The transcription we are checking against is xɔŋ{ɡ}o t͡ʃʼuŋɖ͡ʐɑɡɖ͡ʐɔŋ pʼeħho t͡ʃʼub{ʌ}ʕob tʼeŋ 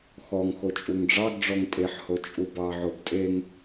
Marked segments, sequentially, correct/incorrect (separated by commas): incorrect, incorrect